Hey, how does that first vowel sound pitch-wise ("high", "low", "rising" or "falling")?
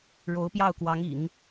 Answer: rising